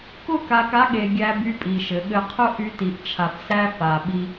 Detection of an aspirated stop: present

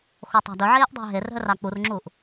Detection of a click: present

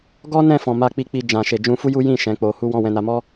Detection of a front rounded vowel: absent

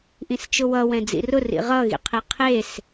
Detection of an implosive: absent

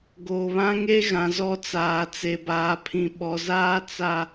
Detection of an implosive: present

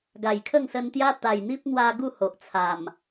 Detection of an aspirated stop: present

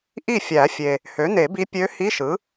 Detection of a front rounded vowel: present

